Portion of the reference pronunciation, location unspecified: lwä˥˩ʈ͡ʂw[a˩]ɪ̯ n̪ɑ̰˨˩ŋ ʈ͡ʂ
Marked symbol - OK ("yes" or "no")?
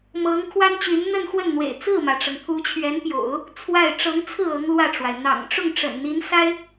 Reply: yes